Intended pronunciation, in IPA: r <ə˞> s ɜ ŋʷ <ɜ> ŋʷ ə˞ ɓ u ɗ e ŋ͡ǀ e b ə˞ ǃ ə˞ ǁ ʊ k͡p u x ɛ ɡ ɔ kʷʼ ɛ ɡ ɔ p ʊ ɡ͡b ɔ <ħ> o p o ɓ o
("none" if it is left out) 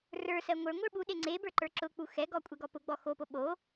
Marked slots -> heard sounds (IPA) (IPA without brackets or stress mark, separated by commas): ə˞, ə˞, x